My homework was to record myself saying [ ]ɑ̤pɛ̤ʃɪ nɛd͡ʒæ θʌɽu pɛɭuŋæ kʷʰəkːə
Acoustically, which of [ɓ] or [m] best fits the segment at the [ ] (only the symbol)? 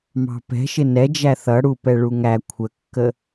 m